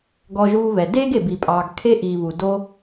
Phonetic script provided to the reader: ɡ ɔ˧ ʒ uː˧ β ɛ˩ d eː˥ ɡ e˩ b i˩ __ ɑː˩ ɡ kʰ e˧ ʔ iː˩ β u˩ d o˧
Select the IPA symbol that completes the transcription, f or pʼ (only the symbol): pʼ